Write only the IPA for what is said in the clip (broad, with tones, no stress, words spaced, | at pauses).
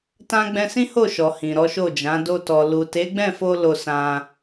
tã˦ɡ͡bɛ̃˦ sĩ˦ho˦˨ʃɔ˨ hĩ˨ɾɔ˨˦ʃo˦˨d͡ʒã˨˦ do˧tɔ˨ lu˨te˨˦ɡ͡bɛ̃˦˨fo˧ lo˧sã˧